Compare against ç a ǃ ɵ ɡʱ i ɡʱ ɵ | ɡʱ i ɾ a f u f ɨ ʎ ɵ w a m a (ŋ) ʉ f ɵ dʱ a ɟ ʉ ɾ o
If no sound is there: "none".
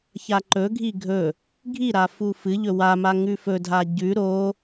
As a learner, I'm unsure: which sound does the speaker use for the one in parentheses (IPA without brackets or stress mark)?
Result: ŋ